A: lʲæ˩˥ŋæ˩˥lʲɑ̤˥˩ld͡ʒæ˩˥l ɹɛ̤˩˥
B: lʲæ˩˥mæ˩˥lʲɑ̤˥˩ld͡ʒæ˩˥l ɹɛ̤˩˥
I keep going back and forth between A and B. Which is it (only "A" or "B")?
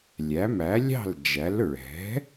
B